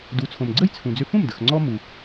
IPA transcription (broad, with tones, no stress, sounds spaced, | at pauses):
d u˩˥ t͡sʰ õ˩ m ɡ͡ǀ ə˥˩ j t͡sʰ ũ˩ d͡z ʏ˧ f ũ˥˩ m d ə˩ x ŋ͡ǀ ɔ˧ m u˩